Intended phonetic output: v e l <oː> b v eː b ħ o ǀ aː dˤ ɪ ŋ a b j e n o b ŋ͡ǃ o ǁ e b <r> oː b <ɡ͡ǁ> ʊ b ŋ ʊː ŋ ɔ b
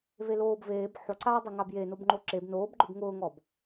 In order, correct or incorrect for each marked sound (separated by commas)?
correct, incorrect, incorrect